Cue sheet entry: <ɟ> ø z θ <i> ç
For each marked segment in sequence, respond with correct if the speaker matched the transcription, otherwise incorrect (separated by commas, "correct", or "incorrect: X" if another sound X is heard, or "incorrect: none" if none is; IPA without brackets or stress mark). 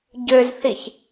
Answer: correct, correct